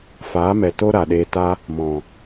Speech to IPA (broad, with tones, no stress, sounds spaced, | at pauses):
f aː˨˦ m ɛ˨ t o˦ ɾ a˨ ɗ eː˧ t a˦ | m ɔ̃˨